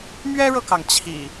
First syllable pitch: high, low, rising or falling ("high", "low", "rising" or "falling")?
high